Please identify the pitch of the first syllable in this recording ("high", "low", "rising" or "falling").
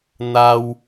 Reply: high